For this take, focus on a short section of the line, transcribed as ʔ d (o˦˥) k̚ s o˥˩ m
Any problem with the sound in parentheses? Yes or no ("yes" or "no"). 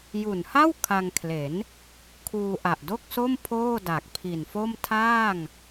yes